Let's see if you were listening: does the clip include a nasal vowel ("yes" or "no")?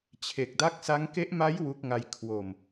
no